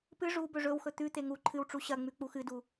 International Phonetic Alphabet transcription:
p ɨ ʐ u b ɵ ʐ ɵ w x ɵ t̪ ʉ t̪ e ŋ u ǃʰ ɨ w ʈ͡ʂ u ɕ ɐ ŋ͡m ʉ k͡p u x ɨ d u

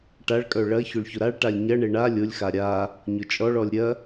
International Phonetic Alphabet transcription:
ʈ a ɭ kʼ œ ɭ ɐ ç ʊ ɭ ç ʊ ɾ a ɭ ʈ a lʲ ɲ ɐ ɳ e ɳ a lʲ ʊ lʲ x a ɾʲ a | ɲ ʊ t͡ʃʼ ɔ ɭ ɔ lʲ ɾʲ ɐ

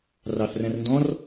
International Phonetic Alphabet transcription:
r ɑ θ r æ̃ r n d ɔ̃ r

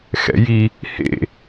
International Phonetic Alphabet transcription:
x ɛ̰ j i | h ḛ

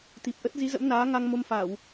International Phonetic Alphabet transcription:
t̪ i˨˩ p̚ ʔ ə˦˥ t̚ z i˨˦ z ə̰˧˥ m n aː˨˦ ŋ a˧ ŋ m o˧ m f a˧˩˨ w

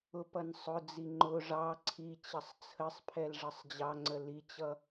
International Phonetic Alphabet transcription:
ʊ p ʌ n sˤ ʊ d͡z i ŋ͡ǃ ʊ ʐ ɑ ǀʰ i t͡ɕ ʌ sˤ t͡sʰ ə sˤ pʰ ɛ l ʐ ʌ sˤ d͡ʑ ɑ ŋ͡ǀ ə l i t͡ɕ ʌ

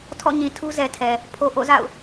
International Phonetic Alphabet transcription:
tʰ ɔ̰˦˨ ɲ ĩ˨ tʰ u˦ z ɛ˨ tʰ ɛ˨ | pʰ o˨ ʔ o̰˦˨ z a̰˦˨ ʊ̯

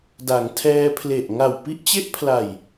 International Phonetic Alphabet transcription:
d a˩˦ ŋ tʰ ɛː˧ pʰ l e˨˩ ʔ ŋ a˨˩ w p i˦˥ ʔ t͡ɕ e˦˥ ʔ pʰ l a˨˩ j

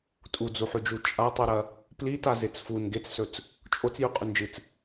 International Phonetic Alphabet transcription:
tʼ u d͡z u ħ ʉ d͡ʒ u t͡ʃʼ a tˤ ʉ ɾ ɐ | p l i t a z e t͡s f u n ɡ e t͡s s ɵ t͡s | t͡ʃʼ o t͡s j ʉ qʼ ʉ n d͡ʒ ɨ t͡s

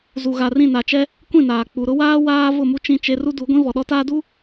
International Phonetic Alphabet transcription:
z u˨ ɣ a˨ r ĩ˦˨ n a˨ t͡ʃ ɛ˦ | kʷ ĩ˦˨ n aː˨ k͡p u˨ ɾ ʊ˦ w aː˦ w aː˦ v ʊ˦˨ m u˦ t͡ʃ ĩ˦˨ t͡ʃ e˦ r u˦ d u˨˦ ɡʷ ĩ˦ v ɔ˨ ɗ ɔ˦ t aː˦ d u˦

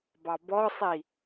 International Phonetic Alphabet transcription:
b ɑ b ɔ sˤ i

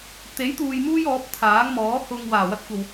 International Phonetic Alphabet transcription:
t̪ e˨˥ j t̪ uː˨ j m uː˥ j ɔː˨˥ p̚ t̪ʰ aː˨˥ ŋ m ɔː˨˥ h ʊ˧ ŋ w aː˨˩ w ɐ˥ t̚ kʷ ɐ˨ w

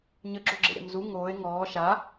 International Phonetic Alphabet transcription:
ɲ ə ɡ͡ǁ o ɡ͡ǁ ḛ ɾʲ a̰ m z u ŋ oː e̯ ŋ ɔː ʃ a

